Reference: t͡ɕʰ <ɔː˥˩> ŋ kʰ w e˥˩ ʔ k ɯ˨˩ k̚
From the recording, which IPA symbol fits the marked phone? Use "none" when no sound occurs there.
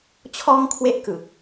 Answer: ɔː˥˩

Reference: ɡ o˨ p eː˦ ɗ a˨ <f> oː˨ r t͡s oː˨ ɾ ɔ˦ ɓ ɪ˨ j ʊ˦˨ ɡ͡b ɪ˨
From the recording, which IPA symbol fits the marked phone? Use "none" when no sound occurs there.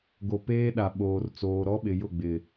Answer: ɓ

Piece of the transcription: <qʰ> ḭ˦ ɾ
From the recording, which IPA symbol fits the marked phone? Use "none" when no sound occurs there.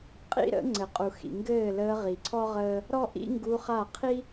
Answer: qʼ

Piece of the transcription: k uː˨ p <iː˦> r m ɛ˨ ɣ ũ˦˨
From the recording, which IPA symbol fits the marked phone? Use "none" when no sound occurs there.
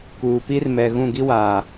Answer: i˦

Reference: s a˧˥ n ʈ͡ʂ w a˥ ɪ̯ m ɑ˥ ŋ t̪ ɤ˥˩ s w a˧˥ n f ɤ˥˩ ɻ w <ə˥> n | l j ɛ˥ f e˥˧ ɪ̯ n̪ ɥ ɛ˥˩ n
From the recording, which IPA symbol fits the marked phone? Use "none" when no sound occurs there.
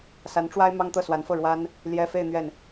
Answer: a˥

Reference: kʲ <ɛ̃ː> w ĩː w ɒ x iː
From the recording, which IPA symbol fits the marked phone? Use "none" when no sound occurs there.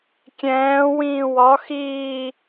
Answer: ɛ̃ː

